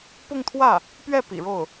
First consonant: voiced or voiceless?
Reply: voiceless